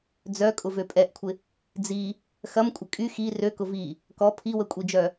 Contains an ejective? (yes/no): yes